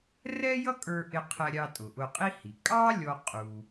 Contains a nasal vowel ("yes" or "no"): no